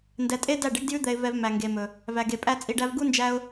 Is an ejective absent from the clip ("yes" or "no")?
no